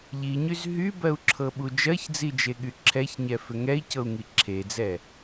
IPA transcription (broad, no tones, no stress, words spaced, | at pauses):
ʎiɲyz ɦybɜu̯ǁʰɤɓu d͡ʒɜçd͡zid͡ʒeɠy ǁʰɛçɲɛfʏ ŋɛi̯cɤu̯ŋi ǁʰed͡zɛ